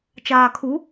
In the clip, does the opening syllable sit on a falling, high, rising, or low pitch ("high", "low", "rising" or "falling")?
low